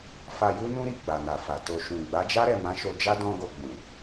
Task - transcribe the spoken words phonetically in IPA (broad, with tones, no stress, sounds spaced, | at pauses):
f a˧ j u˦ n ũ˦ ɾ i˦˨ ɡ͡b a˨ n a˨ f a˨ t o˧ ʃ ũ˨ ɡ͡b a˨˦ d͡ʒ a˦ ɾ ɛ˦˨ m ã˨˦ ʃ o˧ d͡ʒ a˦ d ɔ̃˦ ɡ o˧ ɡ͡b ũ˨